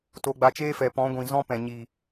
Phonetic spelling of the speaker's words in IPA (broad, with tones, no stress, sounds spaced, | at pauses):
t o˧ ɡ͡b a˧ t͡ʃ eː˦ f ɛ˨ p ɔ̃˨˦ ɡʷ ĩ˨ z ɔ̃˦ p ɛ̃˨ ɲ i˨